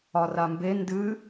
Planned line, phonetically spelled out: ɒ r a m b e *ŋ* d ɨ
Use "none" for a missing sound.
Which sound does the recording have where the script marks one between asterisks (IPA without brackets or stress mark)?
n